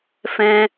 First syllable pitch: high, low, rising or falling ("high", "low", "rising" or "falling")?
high